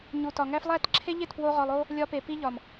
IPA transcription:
ɲ u˨ t ɒ˨ ŋ æ˦ f lˠ æ˦˨ t ǁʰ e˦ ʎ e˦˨ t p w o˦ ʁ ɒ˧ lˠ o˦ | lʲ ɒ˧ p e˨ p i˧ ʎ ɒ˨ m

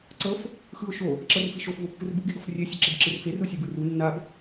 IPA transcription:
ǀ ɤ f | x ɯ ʊ̯ ʃ o | ǁ ɤ r f i ʃ o f v o pː ɯ r b u ɡ e ɡ ɔ f rʲ e sʲ ɛ ǁ ɯ b ǁ ɯ r f e r u sʲ e b ɯ r u nː a b

